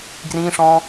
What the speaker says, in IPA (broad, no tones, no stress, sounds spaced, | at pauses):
ɡ r ĩ ʂ ɔ̃